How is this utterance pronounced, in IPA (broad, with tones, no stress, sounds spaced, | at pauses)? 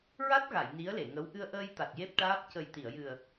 ɹ a˦˥ t̚ ɣ a˨˩˨ j n i˧˥ ə̯ l e˨˩˨ ŋ ə˧˥ w ʔ ɨ˧ ə̯ ʔ əː˧ j t̪ a˨˩ t̚ j e˦˥ p̚ ʈ aː˦˥ p̚ c ə˨˩ j t̪ i˨˩˨ ə̯ j ɨ˨˩ ə̯